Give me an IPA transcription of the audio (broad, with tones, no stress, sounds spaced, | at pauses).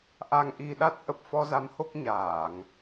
ʔ a˧ ŋ ʔ i˧ ɗ a˦˥ t̚ ʔ ə˨˩ p̚ f ɔ˧ z a˨˦ m h o˦˥ k̚ ɲ aː˧˩˨ ŋ